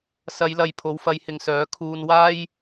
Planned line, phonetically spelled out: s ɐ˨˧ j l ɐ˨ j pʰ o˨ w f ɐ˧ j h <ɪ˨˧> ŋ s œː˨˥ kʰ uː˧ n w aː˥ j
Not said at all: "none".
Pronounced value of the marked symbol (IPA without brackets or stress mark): ɪ˨